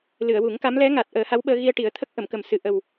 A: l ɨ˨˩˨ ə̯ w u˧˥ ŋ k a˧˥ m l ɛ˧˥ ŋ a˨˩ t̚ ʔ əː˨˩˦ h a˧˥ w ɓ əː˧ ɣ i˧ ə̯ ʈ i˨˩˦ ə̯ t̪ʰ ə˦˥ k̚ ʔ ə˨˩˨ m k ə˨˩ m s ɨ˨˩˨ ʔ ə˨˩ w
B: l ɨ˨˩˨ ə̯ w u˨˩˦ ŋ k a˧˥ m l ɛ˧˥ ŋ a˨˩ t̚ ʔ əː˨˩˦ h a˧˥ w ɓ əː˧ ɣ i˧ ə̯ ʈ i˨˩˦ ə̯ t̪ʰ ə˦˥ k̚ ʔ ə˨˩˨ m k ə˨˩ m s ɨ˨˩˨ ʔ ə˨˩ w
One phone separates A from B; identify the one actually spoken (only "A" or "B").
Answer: B